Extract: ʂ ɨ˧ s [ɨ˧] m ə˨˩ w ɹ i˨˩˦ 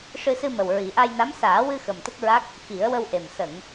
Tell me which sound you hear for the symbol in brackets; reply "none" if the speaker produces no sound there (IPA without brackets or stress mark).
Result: ɨ˧